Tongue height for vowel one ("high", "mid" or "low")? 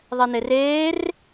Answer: mid